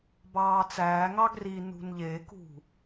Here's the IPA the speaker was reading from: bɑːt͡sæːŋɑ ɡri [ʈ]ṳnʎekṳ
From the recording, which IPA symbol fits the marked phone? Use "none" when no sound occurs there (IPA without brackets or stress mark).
n